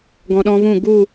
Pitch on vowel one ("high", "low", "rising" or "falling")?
low